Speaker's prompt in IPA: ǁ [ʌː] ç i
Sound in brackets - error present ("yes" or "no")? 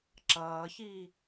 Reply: no